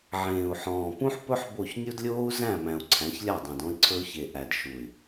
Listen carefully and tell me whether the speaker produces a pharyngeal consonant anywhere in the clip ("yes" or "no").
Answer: yes